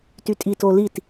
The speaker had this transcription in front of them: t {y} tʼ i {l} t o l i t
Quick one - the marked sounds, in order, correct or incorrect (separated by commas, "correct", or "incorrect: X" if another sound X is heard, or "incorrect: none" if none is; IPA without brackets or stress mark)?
correct, incorrect: none